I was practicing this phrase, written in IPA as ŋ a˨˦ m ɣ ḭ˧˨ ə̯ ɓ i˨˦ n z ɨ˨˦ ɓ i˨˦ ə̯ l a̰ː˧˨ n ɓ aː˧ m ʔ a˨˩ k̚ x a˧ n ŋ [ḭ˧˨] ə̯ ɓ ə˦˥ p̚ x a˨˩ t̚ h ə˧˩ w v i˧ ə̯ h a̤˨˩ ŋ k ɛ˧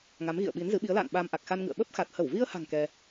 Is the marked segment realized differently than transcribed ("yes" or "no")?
yes